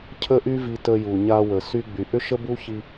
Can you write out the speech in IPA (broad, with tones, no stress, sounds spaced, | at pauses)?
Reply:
cʰ ə˦ ʔ y˦ v i˧ t ə˧ j u˨ ɲ a˧ w ə˨ s y˧ ɡ͡b y˨ ʔ ʏ˦ ʃ ə˦ b u˦ ç i˧